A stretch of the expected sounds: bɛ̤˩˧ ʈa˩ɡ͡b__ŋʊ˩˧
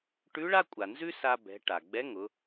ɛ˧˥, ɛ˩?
ɛ˧˥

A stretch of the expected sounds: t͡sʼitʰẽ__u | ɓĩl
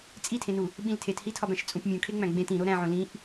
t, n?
n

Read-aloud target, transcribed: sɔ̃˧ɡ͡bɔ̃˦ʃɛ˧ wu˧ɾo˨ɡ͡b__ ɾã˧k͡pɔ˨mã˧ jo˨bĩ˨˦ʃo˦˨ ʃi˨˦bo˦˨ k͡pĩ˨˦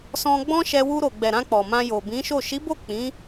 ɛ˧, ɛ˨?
ɛ˨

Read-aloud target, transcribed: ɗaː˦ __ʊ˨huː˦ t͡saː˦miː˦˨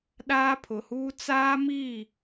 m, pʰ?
pʰ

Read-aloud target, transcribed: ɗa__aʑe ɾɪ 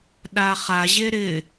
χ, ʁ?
χ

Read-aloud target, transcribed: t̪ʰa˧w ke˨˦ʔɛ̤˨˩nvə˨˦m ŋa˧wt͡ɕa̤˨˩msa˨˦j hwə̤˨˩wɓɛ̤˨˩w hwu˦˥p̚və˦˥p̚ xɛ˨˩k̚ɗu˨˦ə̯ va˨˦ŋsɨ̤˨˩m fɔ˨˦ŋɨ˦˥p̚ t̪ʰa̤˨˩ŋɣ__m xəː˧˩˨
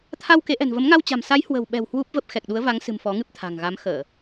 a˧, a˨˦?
a˨˦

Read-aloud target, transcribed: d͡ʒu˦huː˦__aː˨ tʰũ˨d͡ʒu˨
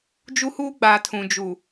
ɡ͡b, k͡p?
ɡ͡b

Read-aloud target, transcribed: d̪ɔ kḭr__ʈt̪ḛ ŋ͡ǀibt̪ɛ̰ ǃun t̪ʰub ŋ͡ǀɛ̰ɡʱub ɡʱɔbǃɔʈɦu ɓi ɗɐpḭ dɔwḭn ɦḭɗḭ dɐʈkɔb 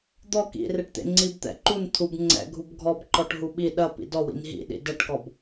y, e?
e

